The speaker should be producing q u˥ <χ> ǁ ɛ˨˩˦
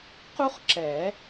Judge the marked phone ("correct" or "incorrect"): correct